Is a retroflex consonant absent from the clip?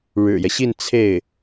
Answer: no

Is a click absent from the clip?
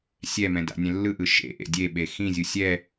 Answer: yes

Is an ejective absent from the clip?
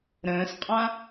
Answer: no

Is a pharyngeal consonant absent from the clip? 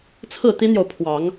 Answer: yes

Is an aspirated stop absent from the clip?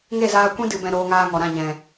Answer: yes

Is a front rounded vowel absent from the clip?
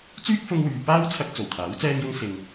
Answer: no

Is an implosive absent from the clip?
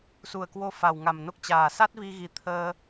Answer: yes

